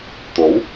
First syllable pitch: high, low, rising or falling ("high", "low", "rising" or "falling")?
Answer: rising